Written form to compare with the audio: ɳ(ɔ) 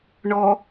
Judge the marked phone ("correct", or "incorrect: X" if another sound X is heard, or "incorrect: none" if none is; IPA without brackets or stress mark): correct